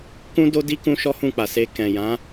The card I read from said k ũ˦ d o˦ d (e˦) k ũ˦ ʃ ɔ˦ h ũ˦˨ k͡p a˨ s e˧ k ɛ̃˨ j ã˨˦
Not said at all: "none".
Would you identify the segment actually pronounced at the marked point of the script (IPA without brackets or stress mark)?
i˦